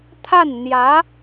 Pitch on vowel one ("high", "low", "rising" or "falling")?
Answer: falling